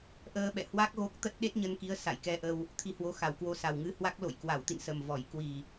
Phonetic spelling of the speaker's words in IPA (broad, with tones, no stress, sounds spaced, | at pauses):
ʔ əː˧ ɓ ɛ̰˧˨ h w a˦˥ k̚ ɣ o˦˥ k̚ t̪ ə˦˥ t̚ ɗ e˦˥ t̚ ɲ ə˧ n k i˨˦ ə̯ s a̰˧˨ j k ɛ˧ ʔ ə˧ w | t̪ʰ i˧ h w o˨˦ x a˧˩ w k w o˧ s a˨˩ w ŋ ɨ˧ h w a˦˥ k̚ l o̰˧˨ j k w a˧˩ w t̪ ḭ˧˨ n s ə˨˩ m v ɔ˧˩ j k w i˨˩